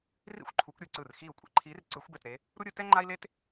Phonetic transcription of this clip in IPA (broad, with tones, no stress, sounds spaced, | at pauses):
r ḭ˥ xʷ ǃʰ u˨˦ kʷ ɾʲ ɯ˧˩ ǀ ɯ˧˩ r x iː˧˩ u̯ kʷʼ ḛ˨˦ ǃʰ iː˨˦ r ǀ ɯ˨˩˦ xʷ b ɛ˧˩ t ɾ e˨˦ | ɾ u˥ ɾʲ ɯ˨˦ t ɛ˥ ŋ͡ǃ a˥ i̯ l e˥ t